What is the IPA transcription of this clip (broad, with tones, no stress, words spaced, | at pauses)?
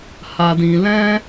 ha˧dĩ˧ lɛ̃˦